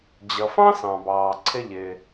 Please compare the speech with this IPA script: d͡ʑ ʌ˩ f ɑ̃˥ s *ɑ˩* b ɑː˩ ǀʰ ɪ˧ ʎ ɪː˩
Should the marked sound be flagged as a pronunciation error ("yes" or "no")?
yes